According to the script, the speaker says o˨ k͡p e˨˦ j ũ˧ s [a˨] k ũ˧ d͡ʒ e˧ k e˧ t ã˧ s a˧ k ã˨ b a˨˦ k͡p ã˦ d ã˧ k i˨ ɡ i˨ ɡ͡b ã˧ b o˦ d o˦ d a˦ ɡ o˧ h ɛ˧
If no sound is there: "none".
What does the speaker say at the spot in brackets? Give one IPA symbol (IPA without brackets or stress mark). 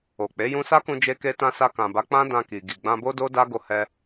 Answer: a˦